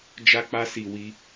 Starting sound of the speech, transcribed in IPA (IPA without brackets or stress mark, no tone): d͡ʒ